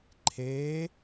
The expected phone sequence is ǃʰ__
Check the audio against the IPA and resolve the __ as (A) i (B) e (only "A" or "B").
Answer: B